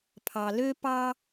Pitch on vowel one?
low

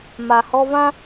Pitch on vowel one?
low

